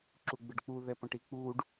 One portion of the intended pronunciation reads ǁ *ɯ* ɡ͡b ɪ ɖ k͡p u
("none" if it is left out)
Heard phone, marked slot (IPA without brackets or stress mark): u